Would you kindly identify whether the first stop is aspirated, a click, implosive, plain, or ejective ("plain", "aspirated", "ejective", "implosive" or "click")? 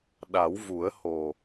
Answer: implosive